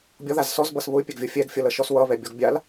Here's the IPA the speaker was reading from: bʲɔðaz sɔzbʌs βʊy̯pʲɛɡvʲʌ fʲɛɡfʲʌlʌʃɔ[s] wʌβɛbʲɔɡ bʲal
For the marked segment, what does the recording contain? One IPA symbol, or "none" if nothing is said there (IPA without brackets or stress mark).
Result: s